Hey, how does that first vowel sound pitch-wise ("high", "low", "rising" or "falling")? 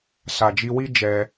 low